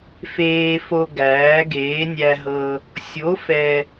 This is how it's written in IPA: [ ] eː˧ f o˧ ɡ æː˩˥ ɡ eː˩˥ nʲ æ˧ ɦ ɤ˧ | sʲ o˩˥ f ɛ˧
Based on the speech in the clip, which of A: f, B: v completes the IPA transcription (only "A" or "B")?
A